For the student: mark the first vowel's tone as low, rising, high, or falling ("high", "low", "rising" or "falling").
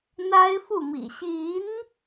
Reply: high